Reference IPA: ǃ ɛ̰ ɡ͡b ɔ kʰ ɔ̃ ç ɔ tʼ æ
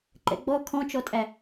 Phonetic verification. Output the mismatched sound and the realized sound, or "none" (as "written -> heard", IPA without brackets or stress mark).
ç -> t͡ʃ